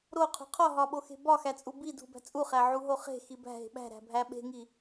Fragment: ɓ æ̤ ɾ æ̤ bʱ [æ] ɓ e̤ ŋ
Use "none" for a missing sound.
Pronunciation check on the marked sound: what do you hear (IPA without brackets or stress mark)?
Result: æ